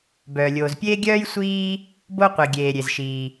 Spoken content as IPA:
b œː˩ lʲ oː˩ z pʲ eː˥ ɡʲ œː˥ j sʷ iː˥ | b o˥ qʷ i˩ ɡʲ eː˩ ɾʲ e˩ z ʃ iː˩

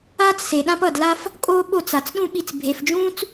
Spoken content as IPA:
aː˦ t͡s s e˨ ɗ ã˦ p ʌ˦˨ d l a˦ f | kʼ oː˦ ɓ o˦˨ t͡s a˨ t͡s ɗ ũ˦ ɓ i˧ t͡s bʱ e˨ f d͡ʒ ũː˦ t͡s

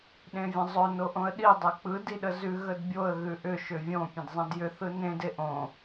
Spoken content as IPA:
ɗ ẽ vʲ ə̃ zˤ ʏ n o ʔ õ ə̯ ɗ i dˤ e k͡p ɯ d i ɗ ə z ʉ ɣ ə d bʲ o ə̯ ɣ ʉ ʔ ʏ ʃ ʏ vʲ õ pʲ ə̃ d zˤ ẽ d j ʏ θ ɯ n ẽ d e ʔ õ

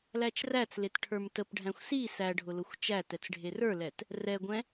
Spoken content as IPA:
l æ t͡ʃ r æ t͡s l e t ʈʰ ə˞ m t ə p ɖʱ æ̃ xʷ s i s æ ɖʱ ʊ l ʊ xʷ t͡ʃ æ t ɛ t͡s ɖʱ e r ə˞ l ɛ t | r ɛ ɡʷ ɛ̃

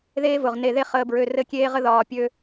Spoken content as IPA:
ð eː˦ v ʊ˨ ʁ n e˨ ð e˦ χ əː˨ b ɹ ø˨ r ɘ˦ kʲ eː˦ ʁ ə˦ ð ɒː˨ pʲ ø˦

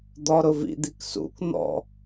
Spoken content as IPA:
d̪ ɔ ɾ ʊ v ḭ d̪ i k s ṵ k n̪ ɔ̰

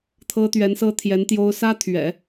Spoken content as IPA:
t̪ʰ ɤ˥ t̪ ɥ ɛ˧˥ n s ɤ˥ t̪ʰ j ɛ˧˥ n t̪ j o˥ ʊ̯ s ä˥ t̪ʰ ɥ ɛ̰˨˩˦

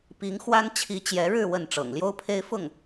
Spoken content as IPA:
p i˧˥ ŋ x w a˥ n t͡ɕʰ i˧˥ t͡ɕ j ɛ˧˥ ɻ ɻ̩˥˧ w ə˥˩ n ʈ͡ʂ ɤ̰˨˩ ŋ l j o˥ ʊ̯ pʰ e˥ ɪ̯ f ʊ˥˩ ŋ

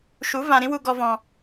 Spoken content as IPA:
ʃ u˨˦ v ã˧ ɾ ĩ˦ w u˧ ɡ ɔ˧ v ɔ̃˧

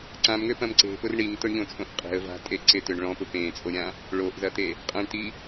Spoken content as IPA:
ǀ ã m ŋ ø p ɐ̃ m ǀ e̤ p ʊ r ɳ i ŋ t ʊ ɳ ʎ õ t͡sʼ õ ʔ qʼ e̤ ə̯ v a̤ tʼ e ǀ ɪ t ʏ ɳ ɭ ɔ̃ p ʊ p ẽ t͡sʼ o ɾʲ ã | ɭ o ʔ z ɐ t̪ e | qʼ ɐ̃ ɳ t i

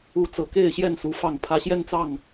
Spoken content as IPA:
u˨˦ t͡s ɤ˨˩ k e˥˨ ɪ̯ ɕ j ɛ˥˨ n s u˨˦ f ɑ˨˩ ŋ pʰ ä˨˦ ɕ j ɛ˦ n t͡s ɑ˥˨ ŋ

